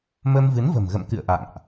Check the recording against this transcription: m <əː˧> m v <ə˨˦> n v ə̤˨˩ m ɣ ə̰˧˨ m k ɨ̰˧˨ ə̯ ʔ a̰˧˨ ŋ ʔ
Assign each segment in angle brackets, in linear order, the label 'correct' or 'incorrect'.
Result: incorrect, incorrect

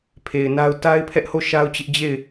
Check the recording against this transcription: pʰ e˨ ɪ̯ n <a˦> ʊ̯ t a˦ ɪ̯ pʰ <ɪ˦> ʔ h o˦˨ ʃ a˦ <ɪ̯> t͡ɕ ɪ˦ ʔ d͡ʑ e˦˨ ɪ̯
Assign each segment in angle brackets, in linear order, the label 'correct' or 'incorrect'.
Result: correct, incorrect, incorrect

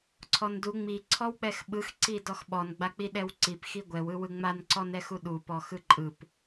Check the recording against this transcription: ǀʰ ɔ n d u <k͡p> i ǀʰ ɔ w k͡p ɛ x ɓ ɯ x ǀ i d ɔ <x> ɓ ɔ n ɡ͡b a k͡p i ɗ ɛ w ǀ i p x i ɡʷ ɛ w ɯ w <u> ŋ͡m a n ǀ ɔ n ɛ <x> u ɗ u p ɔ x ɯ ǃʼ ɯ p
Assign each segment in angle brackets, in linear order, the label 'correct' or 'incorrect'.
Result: incorrect, correct, incorrect, correct

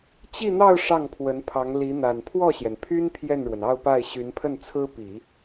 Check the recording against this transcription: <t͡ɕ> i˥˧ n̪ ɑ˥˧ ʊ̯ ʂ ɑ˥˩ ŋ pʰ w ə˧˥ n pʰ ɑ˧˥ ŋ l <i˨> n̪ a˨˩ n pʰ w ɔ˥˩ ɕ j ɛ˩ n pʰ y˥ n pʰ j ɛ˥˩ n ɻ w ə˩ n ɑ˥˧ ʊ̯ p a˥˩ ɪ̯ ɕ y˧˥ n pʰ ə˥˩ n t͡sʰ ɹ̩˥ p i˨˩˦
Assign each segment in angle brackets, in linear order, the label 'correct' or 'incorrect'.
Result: correct, incorrect

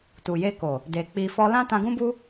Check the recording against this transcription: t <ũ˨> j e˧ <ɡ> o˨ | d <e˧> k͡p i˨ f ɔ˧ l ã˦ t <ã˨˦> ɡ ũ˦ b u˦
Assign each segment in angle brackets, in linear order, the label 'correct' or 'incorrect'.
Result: incorrect, incorrect, incorrect, incorrect

